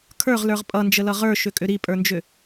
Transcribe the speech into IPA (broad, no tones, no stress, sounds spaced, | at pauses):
kʰ ə˞ ʁ l ə˞ ʁ pʼ ʌ n d͡ʒ ə l ʌ ʁ ə˞ ʃ ʏ kʼ ʏ ɾ i pʼ ə˞ n d͡ʒ ʏ